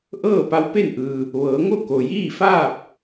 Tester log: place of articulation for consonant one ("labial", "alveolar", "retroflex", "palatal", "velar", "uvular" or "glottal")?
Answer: glottal